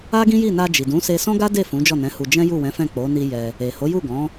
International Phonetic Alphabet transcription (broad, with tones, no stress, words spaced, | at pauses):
a˦ɡĩ˦ji˦˨ na˧d͡ʒi˨dũ˨˦ se˧sɔ̃˦ɡa˦de˦˨ fũ˨˦d͡ʒɔ˦˨nɛ̃˨˦hu˧ d͡ʒɛ̃˦ju˦˨wɛ̃˨˦fɛ̃˦˨ k͡po˨˦ni˧ jɛ˧ | e˨ ho˨˦ju˦˨ ɡɔ̃˨˦